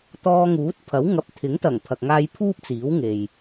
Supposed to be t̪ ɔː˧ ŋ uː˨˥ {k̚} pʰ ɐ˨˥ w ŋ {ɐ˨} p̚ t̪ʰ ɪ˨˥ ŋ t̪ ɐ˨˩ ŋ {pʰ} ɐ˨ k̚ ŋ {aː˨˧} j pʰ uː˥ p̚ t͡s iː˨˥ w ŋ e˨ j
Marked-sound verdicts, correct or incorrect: incorrect: t̚, incorrect: ɐ˨˥, correct, incorrect: aː˧

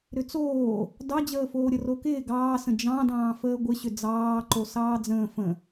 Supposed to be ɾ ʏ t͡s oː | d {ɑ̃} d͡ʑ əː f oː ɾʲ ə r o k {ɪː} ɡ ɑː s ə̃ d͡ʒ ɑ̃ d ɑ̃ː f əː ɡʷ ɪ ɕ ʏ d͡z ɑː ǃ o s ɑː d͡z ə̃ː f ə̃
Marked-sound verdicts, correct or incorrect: incorrect: ɑ, correct

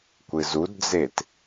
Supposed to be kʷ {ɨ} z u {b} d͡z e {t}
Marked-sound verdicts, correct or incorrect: correct, incorrect: d, correct

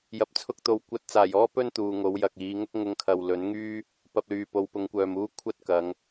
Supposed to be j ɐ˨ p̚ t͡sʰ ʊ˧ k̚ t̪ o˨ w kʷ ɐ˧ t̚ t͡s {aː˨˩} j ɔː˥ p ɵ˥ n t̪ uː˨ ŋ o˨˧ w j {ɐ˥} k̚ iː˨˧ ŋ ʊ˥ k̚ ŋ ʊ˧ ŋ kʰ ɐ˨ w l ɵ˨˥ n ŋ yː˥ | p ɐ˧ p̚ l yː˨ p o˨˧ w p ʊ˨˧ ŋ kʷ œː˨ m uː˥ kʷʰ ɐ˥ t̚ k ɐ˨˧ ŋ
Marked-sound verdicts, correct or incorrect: correct, incorrect: ɐ˨

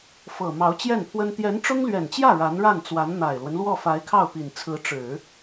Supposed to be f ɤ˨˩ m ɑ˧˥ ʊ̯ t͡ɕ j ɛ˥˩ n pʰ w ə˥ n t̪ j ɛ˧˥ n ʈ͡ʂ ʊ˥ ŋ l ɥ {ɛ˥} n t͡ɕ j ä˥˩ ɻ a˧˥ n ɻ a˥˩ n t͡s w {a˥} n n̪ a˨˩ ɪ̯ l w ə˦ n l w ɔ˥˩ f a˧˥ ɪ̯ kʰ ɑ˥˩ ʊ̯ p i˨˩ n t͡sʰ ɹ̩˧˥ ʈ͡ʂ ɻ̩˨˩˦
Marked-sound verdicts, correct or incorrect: incorrect: ɛ˨˩, incorrect: a˧˥

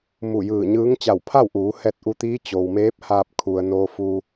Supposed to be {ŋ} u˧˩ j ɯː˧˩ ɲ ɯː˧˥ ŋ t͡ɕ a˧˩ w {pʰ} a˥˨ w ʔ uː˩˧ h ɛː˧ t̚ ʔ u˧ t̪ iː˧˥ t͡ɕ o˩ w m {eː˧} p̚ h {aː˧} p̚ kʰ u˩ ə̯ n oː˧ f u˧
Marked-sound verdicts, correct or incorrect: incorrect: m, correct, incorrect: eː˧˥, correct

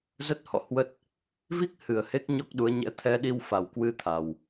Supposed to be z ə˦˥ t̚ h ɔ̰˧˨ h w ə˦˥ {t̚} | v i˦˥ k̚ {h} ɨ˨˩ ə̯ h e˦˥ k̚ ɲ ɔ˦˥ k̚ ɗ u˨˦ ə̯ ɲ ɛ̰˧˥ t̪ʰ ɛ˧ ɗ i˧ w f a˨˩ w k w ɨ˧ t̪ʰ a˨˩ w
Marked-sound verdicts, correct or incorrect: correct, correct

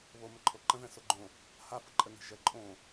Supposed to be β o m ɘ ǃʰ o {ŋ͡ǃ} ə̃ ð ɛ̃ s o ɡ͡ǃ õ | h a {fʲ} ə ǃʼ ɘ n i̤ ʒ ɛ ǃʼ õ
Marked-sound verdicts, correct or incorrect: incorrect: ǃ, incorrect: f

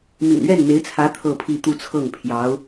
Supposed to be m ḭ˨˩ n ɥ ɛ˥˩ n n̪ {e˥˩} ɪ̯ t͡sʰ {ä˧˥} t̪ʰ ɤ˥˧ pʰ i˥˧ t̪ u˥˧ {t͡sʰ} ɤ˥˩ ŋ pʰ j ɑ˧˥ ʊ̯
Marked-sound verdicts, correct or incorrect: incorrect: e˧˥, correct, correct

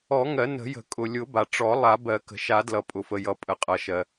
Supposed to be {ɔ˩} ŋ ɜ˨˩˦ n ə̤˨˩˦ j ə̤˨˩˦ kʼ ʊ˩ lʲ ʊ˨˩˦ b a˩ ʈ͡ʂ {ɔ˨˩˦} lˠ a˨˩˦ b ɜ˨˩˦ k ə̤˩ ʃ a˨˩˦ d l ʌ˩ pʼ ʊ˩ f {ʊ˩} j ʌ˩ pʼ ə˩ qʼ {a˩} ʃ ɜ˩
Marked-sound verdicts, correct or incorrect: incorrect: ɔ˨˩˦, correct, incorrect: ə˩, incorrect: ʌ˩

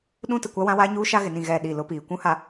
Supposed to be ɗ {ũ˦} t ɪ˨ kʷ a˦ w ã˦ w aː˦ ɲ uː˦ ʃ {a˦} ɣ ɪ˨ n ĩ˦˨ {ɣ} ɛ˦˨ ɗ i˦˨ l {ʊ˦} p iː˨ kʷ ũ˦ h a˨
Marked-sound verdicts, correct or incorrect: correct, correct, correct, correct

